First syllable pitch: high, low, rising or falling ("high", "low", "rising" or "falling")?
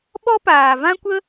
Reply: high